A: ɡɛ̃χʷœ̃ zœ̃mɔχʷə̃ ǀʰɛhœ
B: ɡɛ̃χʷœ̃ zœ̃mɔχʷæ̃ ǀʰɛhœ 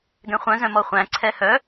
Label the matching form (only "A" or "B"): B